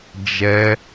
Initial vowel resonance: oral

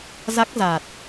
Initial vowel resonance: oral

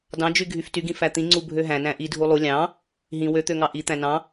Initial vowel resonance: nasal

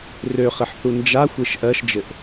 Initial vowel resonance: oral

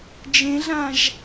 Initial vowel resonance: nasal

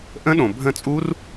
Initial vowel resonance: nasal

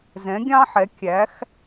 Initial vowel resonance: nasal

